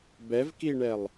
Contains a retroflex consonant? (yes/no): yes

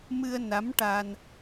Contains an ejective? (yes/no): no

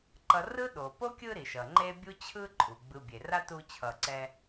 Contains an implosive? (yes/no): yes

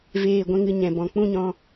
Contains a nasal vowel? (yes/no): yes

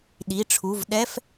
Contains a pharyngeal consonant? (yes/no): no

